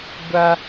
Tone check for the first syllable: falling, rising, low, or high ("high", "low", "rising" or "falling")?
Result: high